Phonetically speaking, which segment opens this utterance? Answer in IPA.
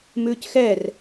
m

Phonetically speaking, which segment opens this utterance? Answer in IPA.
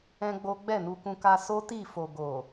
ɛ̃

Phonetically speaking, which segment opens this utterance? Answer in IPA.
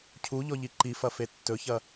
cʰ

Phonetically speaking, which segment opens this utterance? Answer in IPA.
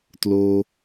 t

